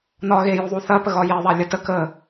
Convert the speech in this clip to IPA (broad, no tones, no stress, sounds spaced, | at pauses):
n ɒ ɣ e j u ðˤ u θ ɐ p ə ɣ ɒ j e ðˤ a lʲ ə t ə k ə